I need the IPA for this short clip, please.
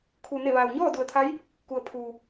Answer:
kʰ uː˩ n e˧˩ ʋ aː˩ w ɲ ɔː˥˨ d u˩ ə̯ t̪ʰ a˧˥ j | k u˩ ə̯ pʰ uː˩

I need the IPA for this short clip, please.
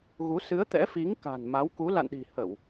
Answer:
ɣ u˨˦ s ɨ˨˦ ə̯ t̪ ɛ̰˧˥ f i˨˦ ŋ k a̤˨˩ n m a˨˦ w k u˨˦ l a̰˧˨ n ɗ i̤˨˩ h ə˧˩˨ w

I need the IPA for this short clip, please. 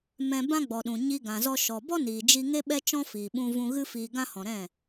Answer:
m ɛ̃˧ b ã˦ ɡ͡b ɔ˨ ɗ ũ˨ ɲ i˧ ɡ ã˨ z ɔ˧ ʃ ɔ˨ b ɔ˦ n iː˨ d͡ʒ i˧ ŋ e˦ ɓ ɛ˦ t͡ʃ ɔ̃˦ f iː˨ ɓ ũ˧ v ũ˧ ɣ ɨ˦ f iː˧ ɡ ã˦ h ɔ̃˨ ɾ ɛ̃˦˨

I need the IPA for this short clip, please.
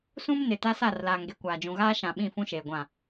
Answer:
s ũ˦ m n ɪ˨ t a˦ s a˦˨ r l aː˨ ŋ ɡ e˨ kʷ aː˨ d͡ʒ ũ˨ ɣ aː˦ ʃ ã˨ ɓ ĩ˦˨ f ũ˦ ʃ eː˨ ɡʷ ã˦˨

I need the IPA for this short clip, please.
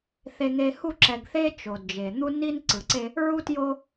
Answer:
θ e˨ ŋ e˨ h u˦˨ ǁ ɛ˨ ɡ θ e˦ t͡ʃ o˨ d d͡ʒ e˨ n̪ u˦ n i˦ n ǀ ɯ˨ ǀ e˦ | ɹ u˦ t j o˦

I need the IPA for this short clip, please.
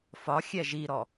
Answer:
f ɒ xʲ ɛ ʒ i ɾ ɔ

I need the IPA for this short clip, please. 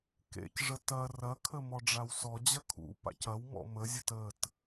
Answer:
k ḛ c ʐ ə t ɐ r ɐ kʰ ə m ɔ ɖ͡ʐ a w s ɔ d͡ʑ ɐ kʰ ṵ p a̰ c ɐ w m ɔ̰ m ə zʲ ə t ə t

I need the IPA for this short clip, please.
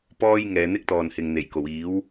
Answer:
p ɔː˥ j ŋ ɛː˨˧ n̪ ɪ˥ k̚ t̪ ɔː˨ n h ɪ˨ ŋ n̪ e˨˩ j k o˨˩ w iː˨˥ w

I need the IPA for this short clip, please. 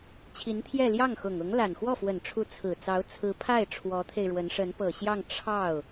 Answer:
t͡ɕʰ i˧˥ n t̪ʰ j ɛ˥˧ l j ɑ˥˩ ŋ x ʊ˨˩ ŋ ʊ˧˥ ŋ l a˨˩ n x w ɔ˥˩ f w ə˨˩ n ʈ͡ʂʰ u˧˥ t͡sʰ ɹ̩˨˩ t͡s ɑ˧˥ ʊ̯ t͡sʰ ɹ̩˧˥ pʰ a˥˩ ɪ̯ ʈ͡ʂʰ w ɔ˧˥ t̪ʰ e˧ ɪ̯ ɻ w ə˧˥ n ʂ ə˧˥ n p ɤ˨˩ ɕ j ɑ˥˧ ŋ ʈ͡ʂʰ ɑ˥˩ ʊ̯

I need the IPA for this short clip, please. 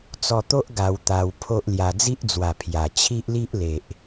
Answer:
t͡s ɔ˧ t̪ o˦ ʔ ɡ a˧ w t̪ a˧ w pʰ o˦ ʔ l j a˧ d͡z i˦ ʔ d͡z w a˨˩ pʰ j a˨˩ t͡ɕʰ i˦ ʔ l i˦ ʔ l e˨ ʔ

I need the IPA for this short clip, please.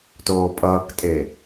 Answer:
t oː pʼ ʌː k tʼ e

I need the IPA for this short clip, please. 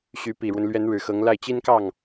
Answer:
ɕ y˧˥ p i˨˩ ɻ w ə˦ n l ɥ ɛ˧˥ n ɻ ɻ̩˨˩ x ɤ˧˥ ŋ l a˥˩ ɪ̯ t͡ɕ i˥ n k ɑ˥˩ ŋ

